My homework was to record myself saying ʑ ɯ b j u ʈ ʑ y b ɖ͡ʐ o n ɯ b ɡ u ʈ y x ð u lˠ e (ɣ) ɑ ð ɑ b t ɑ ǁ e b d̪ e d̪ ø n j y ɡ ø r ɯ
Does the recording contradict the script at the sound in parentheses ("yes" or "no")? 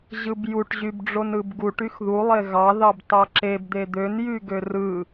no